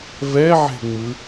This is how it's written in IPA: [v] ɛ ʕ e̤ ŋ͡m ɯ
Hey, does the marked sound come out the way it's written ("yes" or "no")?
yes